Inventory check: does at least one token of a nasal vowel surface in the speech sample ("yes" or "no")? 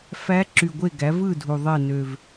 no